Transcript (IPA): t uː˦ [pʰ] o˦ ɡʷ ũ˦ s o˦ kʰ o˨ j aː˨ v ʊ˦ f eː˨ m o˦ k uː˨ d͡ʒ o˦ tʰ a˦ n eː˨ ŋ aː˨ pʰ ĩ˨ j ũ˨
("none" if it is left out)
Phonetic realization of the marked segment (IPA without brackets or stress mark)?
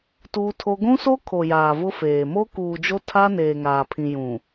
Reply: tʰ